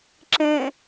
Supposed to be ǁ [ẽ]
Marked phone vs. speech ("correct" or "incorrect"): correct